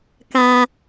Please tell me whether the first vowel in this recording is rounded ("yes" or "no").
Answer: no